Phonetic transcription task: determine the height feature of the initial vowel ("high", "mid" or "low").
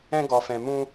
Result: mid